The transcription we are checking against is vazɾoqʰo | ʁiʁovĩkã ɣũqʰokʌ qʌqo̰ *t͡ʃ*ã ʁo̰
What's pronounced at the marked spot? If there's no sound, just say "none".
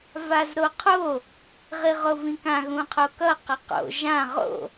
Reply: ʒ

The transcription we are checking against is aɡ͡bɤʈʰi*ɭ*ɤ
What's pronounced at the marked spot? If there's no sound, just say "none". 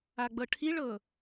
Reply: ɭ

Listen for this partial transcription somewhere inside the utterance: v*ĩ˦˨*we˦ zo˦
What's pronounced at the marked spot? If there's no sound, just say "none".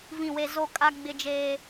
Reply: ĩ˦˨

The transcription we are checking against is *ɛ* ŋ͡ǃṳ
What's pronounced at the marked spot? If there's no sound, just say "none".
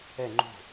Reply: ɛ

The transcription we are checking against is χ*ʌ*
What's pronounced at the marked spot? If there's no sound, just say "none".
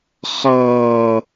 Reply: ʌː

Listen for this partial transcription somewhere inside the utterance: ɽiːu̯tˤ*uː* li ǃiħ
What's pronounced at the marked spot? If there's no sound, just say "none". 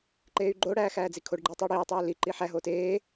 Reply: oː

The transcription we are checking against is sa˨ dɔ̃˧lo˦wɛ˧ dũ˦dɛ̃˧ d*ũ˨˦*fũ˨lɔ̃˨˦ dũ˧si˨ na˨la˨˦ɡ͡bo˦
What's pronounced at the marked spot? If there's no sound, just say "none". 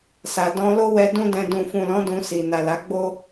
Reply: ũ˨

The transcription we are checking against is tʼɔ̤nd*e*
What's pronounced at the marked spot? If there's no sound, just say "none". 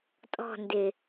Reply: e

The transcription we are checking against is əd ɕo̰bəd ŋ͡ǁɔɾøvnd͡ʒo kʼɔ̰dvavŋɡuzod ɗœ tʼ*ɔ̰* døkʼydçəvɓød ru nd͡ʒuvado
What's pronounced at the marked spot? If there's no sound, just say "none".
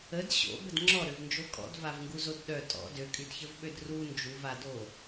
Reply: ɔ̰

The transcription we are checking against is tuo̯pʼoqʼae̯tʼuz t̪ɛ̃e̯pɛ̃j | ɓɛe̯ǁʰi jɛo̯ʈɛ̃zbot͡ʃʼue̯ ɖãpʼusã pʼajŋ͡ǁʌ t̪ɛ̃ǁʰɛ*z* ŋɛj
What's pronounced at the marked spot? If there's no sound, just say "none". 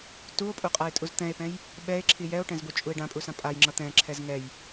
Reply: z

